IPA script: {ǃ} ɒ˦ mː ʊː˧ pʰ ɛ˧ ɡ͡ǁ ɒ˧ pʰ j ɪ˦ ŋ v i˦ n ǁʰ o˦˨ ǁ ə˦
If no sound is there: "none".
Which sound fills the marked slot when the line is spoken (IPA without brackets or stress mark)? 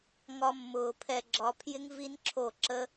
ŋ